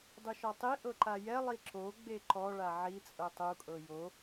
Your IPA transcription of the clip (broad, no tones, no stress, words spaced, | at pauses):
dˤuʃɔtˤi ʔɤǃajɛ lˠiǁo ɡ͡beǃɔ ɭaʕi t͡sʼɤtˤu kʼɤjo